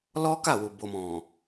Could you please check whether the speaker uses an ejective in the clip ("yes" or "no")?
no